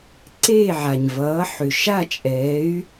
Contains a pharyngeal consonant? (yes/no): yes